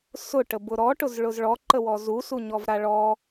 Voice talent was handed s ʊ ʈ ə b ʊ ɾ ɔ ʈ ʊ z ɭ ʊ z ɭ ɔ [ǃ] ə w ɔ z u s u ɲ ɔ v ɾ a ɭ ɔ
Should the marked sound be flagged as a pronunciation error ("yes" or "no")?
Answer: no